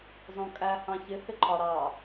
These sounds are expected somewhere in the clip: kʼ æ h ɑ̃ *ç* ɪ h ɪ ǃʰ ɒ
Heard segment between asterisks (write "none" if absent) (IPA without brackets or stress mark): ç